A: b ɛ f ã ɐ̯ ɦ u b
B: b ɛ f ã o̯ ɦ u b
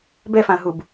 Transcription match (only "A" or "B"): A